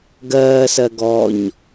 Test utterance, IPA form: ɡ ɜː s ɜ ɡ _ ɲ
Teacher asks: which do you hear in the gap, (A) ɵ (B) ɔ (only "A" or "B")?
B